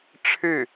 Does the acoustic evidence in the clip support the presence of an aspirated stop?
yes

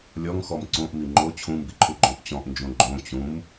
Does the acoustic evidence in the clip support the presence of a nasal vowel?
yes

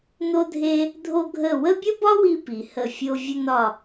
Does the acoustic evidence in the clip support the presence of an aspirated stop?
no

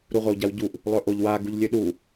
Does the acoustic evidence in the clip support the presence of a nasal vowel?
no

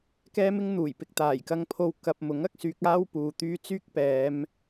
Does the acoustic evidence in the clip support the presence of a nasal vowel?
no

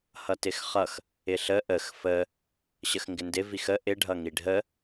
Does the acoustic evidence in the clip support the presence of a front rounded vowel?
no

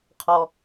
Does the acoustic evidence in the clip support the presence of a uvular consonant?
yes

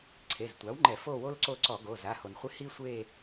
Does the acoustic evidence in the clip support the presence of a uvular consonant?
yes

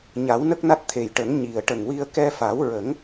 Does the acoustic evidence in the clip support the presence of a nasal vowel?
no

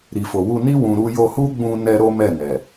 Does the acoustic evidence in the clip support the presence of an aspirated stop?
no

